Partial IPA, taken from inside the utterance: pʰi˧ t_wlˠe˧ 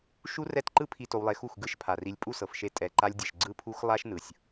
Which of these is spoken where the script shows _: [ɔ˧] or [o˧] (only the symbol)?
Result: o˧